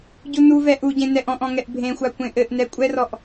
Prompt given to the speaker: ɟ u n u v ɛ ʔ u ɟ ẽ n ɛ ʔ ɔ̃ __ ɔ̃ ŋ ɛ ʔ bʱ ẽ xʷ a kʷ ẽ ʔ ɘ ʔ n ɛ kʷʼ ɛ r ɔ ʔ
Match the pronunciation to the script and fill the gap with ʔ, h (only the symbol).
ʔ